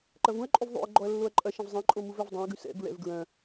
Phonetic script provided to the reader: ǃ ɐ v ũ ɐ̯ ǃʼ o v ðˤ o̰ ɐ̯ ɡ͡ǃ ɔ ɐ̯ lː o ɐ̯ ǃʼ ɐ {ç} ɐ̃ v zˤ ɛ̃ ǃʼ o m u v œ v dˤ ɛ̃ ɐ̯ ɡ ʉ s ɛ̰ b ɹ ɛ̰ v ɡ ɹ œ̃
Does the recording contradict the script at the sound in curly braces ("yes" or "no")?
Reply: yes